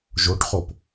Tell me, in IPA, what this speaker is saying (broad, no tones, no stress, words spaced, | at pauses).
ʒoʈχop